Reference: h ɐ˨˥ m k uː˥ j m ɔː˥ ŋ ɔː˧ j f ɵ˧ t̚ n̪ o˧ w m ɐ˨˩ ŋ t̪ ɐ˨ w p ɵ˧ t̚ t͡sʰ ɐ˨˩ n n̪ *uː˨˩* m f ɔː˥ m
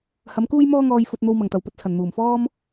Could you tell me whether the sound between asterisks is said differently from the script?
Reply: no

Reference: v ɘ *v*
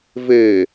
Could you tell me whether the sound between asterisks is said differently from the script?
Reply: yes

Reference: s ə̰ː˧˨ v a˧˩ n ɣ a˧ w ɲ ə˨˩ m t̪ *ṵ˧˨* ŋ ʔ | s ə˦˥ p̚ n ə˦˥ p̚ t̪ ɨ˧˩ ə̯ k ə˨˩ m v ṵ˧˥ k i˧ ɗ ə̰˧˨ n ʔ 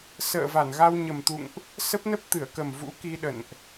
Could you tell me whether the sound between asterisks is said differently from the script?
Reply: no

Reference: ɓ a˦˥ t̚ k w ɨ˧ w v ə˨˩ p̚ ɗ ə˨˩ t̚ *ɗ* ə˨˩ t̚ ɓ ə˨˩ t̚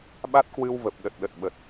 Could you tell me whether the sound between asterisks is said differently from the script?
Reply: no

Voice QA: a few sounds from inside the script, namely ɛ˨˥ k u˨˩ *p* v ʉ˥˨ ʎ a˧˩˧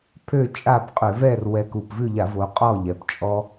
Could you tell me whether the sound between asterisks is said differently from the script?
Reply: no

